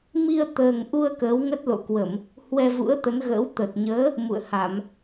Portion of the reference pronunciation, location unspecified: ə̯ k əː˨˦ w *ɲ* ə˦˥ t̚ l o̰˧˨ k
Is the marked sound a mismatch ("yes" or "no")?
yes